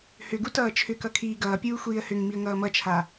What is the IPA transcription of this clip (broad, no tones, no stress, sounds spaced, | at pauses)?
h ʏ ɡ u t ʌː t͡ʃʰ ʏ k ʌ kʰ iː ɡ ʌː pʲ uː xʷ iː ə̯ h ʏ ŋ m i ə̯ ŋ ʌː m ʌ t͡ʃʰ a